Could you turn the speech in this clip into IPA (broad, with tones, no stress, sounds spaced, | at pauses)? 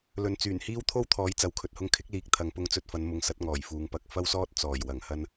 l ɵ˨˥ n t͡s yː˨˩ n h iː˥ w t̪ʰ o˥ w t̪ʰ ɔː˨˥ j t͡s ɐ˨˥ w kʰ ɵ˨ t̚ h ʊ˧ ŋ kʰ ɪ˨˥ k̚ l iː˨˥ k̚ t̪ʰ ɐ˨˧ ŋ p ʊ˧ ŋ t͡s ɵ˧ t̚ f ɐ˨˧ n m ʊ˨˧ ŋ s ɐ˨˥ t̚ ŋ ɔː˨˩ j f uː˨ ŋ p ɐ˨˥ k̚ f ɐ˥ w s ɔː˥ t̚ t͡s ɔː˨˩ j w ɐ˨˩ ŋ h ɐ˧ n